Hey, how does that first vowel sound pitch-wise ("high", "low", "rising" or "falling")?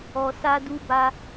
low